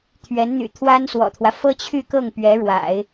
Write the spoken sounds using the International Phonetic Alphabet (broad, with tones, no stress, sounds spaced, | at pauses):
t̪ʰ ɥ ɛ˧˥ n n̪ y̰˨˩ t̪ʰ w a˥ n s w ɔ̰˨˩ t̪ʰ w ä˦ f ɤ˥ t͡ɕʰ y˥˧ k ɤ˥˩ ŋ p ɥ ɛ˧˥ ɻ w a̰˨˩˦ ɪ̯